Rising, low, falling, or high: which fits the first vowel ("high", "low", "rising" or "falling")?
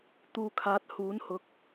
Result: low